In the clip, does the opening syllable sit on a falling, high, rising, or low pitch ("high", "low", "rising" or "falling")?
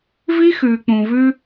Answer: high